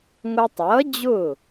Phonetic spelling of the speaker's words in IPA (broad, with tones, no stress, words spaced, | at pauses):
ŋʷæ˧tˤʌː˩˥ d͡ʑʊː˥˩